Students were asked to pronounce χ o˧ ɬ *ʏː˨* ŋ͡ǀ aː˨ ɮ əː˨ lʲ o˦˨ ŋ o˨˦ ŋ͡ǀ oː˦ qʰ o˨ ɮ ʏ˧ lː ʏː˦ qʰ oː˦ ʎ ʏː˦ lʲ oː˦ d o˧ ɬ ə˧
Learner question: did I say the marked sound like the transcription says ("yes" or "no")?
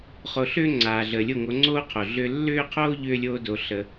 no